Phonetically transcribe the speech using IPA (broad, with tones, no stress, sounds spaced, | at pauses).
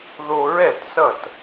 ð o˧ ɹ ɛ˥˩ t s ʌ˥˩ t